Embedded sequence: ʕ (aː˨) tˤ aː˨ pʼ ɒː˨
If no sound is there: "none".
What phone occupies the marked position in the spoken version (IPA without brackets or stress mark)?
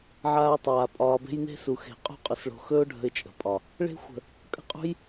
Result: aː˦